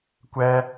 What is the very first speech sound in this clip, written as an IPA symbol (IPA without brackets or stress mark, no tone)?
kʷ